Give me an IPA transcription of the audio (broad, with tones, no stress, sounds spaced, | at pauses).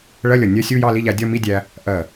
ɭ ɜ˧˥˧ lʲ ʌ˧˩ nʲ ɜ˦˥ sʲ u˧˥˧ j ɑ˥˧ l i˧˥˧ ʎ æ˧ dʲ ɒ˥˧ m i˧˥˧ dʲ æ˧ | ʔ ɜ˧˩